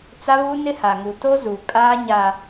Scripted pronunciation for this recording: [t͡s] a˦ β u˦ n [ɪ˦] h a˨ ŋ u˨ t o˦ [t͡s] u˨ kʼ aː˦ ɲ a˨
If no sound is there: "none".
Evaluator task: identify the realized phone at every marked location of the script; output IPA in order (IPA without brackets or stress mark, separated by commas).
t͡s, ɪ˦, z